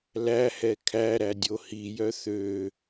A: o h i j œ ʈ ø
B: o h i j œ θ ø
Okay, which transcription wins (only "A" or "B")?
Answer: B